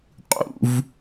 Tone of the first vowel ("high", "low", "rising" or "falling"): falling